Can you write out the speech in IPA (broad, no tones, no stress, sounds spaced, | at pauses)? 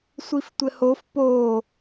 sʷ i f tʷ ɘ h o f p o